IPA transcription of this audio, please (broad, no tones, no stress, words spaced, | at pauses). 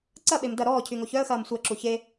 ǀɐɓem dɐ ɾɔːcʰyŋo çœə̯xɐːm sʷæǁu çe